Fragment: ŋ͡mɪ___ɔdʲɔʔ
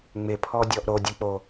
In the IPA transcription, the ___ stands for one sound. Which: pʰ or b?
pʰ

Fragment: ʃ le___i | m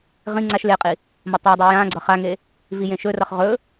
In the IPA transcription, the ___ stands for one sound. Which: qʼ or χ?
qʼ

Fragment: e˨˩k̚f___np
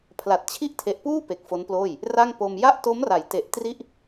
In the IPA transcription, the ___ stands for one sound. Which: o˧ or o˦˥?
o˦˥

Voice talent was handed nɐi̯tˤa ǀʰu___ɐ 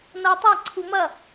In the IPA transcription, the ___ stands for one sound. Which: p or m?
m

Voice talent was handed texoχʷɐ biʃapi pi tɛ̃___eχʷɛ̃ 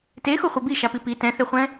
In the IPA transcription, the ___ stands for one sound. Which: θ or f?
θ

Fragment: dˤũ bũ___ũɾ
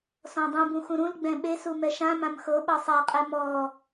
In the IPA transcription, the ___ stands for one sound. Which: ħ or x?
x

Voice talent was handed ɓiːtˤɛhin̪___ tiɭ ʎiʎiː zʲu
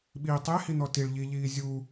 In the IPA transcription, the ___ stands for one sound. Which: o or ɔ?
ɔ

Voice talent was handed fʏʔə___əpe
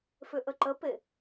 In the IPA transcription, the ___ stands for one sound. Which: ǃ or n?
ǃ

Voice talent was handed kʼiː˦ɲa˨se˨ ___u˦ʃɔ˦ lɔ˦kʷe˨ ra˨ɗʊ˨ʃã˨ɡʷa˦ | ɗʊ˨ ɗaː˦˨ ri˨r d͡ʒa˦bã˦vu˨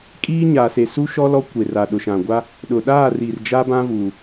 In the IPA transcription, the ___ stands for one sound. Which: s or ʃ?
s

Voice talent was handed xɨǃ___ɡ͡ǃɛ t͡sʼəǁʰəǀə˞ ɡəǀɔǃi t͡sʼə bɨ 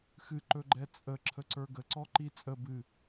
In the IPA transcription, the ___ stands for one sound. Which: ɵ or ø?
ɵ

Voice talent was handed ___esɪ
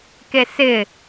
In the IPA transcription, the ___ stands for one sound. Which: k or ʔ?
k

